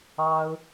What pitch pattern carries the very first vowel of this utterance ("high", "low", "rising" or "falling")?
high